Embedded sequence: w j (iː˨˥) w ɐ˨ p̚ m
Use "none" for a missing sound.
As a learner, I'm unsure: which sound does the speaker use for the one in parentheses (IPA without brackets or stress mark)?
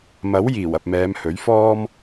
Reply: iː˨˩